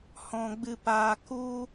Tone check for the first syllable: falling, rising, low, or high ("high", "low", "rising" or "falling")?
low